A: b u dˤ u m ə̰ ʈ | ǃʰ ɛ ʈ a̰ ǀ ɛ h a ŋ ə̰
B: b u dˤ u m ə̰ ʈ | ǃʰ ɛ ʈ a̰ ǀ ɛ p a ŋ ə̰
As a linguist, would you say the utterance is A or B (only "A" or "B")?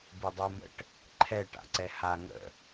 A